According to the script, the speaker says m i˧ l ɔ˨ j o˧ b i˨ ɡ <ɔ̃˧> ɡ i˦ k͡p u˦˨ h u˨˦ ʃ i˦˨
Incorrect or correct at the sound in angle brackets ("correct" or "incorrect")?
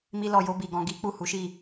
correct